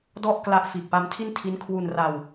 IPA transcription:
d ɔ˥˩ ʔ k l a˦˥ ʔ f iː˨˩ k̚ p a˦˥ m tʰ i˥˩ n tʰ i˦˥ n kʰ w u˧ n r a˧ w

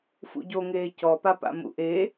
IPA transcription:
f ṵ ɟ o ŋ eː c ɔ p a p a̰ m ṵ ʔ e

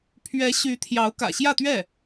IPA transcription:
pʰ ɥ ɛ˧˥ ɕ y˧˥ t̪ʰ j ɑ˧˥ ʊ̯ k ä̰˨˩ ɕ j ä˥˧ t̪ ɥ ɛ˥˩

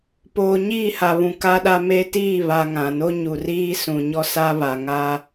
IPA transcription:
p oː˨ ɲ iː˦˨ h a˨ β ũ˨ k a˦ ɗ a˦ m e˦ t iː˦˨ β a˨ ŋ ã˨ n o˦ ɲ u˨ r iː˦ s ũ˨ ɲ ɔ˦ s a˦ β a˨ ŋ a˦

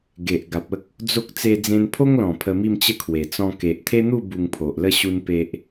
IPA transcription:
ɡ e˨ ʔ ɡ a˨ p̚ ə˦ k̚ | d͡z o˦ k̚ t͡s e˧ d͡z ẽ˧ n pʰ o˦ ŋ l ɔ̃˨˩ pʰ ə˧ m i˥˧ m t͡ɕ ə˦ kʰ w e˨˩ t͡s ɔ̃˧ k e˨ ʔ t̪ʰ e˦ n̪ u˥˧ b u˧ ŋ pʰ o˨ ʔ l ə˥˧ ɕ u˦ n p e˦ ʔ

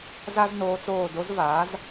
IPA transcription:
z a˥ z n oː˧˥ t͡s oː˦˨ d o˧˥ z v aː˩˥ z

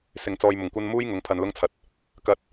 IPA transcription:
s ɪ˨ ŋ t͡s ɔː˧ j m ʊ˨˩ ŋ kʷ ɐ˥ n m uː˥ j ŋ ʊ˨˥ ŋ pʰ ɐ˧ n l ʊ˥ ŋ t͡sʰ ɐ˨ t̚ | k ɐ˧ t̚

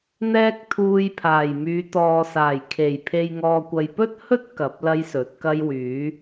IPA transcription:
n̪ ɛː˥ k̚ t̪ʰ uː˧ j pʰ aː˨˩ j m yː˨˧ t̪ ɔː˨ s aː˨˩ j kʰ e˨˩ j pʰ e˧ j ŋ ɔː˧ kʷ ɐ˧ j p ɵ˥ t̚ h ɵ˥ t̚ k ɐ˨˥ p̚ l ɐ˥ j s ɵ˨˥ t̚ k ɐ˥ j w yː˨˥

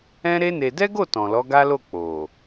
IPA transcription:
ɛ̃˦ ɾ e˦ n e˧ d ɛ˦ ɡ o˦˨ t ɔ̃˨ l ɔ˨˦ ɡ a˦ l o˦˨ k͡p o˨

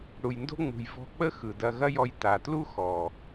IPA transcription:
ɽ u˨ j n d o̤˦ ŋ͡m ṳ˨ j v ɔ̤˧ k͡p ə˦ x ɯ˨ d ɐ˧ ɣ ɐ˦ j ɔ˧ j t a˨ t l u˦ x ɔ˨

